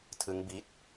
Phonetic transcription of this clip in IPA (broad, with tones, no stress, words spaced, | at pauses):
tʰɯ˦˥ŋbi˦˥t̚